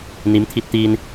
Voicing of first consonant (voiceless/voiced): voiced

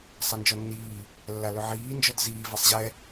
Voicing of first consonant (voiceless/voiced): voiceless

